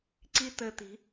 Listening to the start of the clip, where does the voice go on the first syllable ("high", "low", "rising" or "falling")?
high